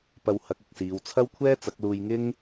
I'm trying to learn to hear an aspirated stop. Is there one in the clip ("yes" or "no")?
yes